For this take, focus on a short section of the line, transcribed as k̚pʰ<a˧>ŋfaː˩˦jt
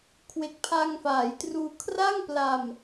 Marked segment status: correct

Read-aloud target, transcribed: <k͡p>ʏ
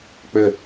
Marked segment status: correct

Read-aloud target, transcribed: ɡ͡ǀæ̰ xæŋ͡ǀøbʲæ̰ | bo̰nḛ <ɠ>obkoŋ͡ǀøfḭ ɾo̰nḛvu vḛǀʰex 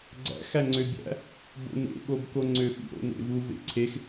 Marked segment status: correct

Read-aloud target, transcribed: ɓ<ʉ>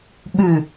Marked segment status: correct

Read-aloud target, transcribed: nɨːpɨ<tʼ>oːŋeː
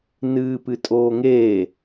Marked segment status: correct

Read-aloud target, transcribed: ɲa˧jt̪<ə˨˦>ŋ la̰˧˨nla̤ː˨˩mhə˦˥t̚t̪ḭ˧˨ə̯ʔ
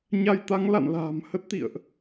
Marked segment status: incorrect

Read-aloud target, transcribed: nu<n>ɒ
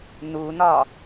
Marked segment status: correct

